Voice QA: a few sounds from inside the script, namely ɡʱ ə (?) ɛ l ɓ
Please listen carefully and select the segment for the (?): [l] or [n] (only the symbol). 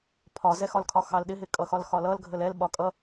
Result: l